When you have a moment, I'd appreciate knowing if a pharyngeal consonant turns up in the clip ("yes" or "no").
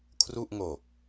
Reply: no